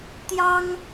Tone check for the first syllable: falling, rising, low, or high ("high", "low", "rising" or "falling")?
high